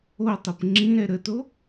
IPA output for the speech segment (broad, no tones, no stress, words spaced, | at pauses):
otˤep ŋ͡ǁĩ ɾɛɾəto